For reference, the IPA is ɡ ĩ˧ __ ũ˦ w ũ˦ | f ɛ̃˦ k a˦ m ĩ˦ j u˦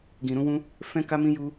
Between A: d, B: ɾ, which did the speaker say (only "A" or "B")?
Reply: B